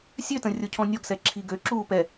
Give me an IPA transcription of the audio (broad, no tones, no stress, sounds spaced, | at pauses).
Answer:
sʲ ø t ə̃ rʲ o cʰ ɔ̃ nʲ ɔ ɡ s ɛ ǁʰ i ɡ ø ǁ uː p ɛ